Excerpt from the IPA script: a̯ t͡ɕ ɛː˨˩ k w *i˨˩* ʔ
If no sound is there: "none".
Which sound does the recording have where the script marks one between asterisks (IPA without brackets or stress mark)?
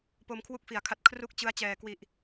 i˨˩